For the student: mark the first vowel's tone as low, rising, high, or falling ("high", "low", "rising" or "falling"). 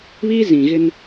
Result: high